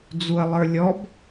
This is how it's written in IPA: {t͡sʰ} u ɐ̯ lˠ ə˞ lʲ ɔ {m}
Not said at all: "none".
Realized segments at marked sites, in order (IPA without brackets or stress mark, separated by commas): d͡z, b